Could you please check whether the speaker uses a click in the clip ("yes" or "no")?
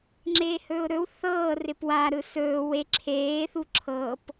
yes